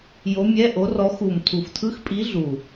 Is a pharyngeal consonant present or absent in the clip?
absent